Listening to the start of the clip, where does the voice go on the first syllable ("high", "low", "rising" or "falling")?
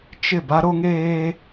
falling